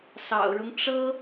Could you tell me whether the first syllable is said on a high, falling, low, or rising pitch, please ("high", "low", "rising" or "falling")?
low